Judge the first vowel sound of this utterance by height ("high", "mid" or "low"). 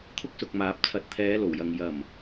high